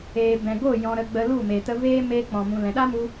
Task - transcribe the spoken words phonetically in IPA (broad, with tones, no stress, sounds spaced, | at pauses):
eː˨ b ɛ̃˨ ɡ o˦˨ j ɔ̃˧ ɾ ə˧ ɡ͡b ə˧ l u˦˨ m e˨ t ə˧ v eː˦ m eː˦ k͡p ɔ̃˨ m ũ˨ l ɛ̃˨ ɗ a˦ m u˧